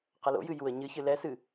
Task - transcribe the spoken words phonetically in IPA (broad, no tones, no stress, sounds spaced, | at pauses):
q ɐ l o̰ j ɨ j u ə̯ ɲ ɨ ç ɨ l ɛ s ɨ